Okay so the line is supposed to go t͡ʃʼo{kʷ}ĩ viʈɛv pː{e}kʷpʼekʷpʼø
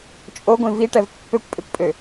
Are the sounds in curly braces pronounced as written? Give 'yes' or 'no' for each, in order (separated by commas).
no, no